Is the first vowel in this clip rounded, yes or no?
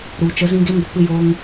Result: yes